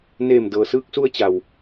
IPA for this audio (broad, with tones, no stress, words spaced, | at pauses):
neː˧˩m dɤː˩sɯː˧k̚su˧ə̯ t͡ɕa˩w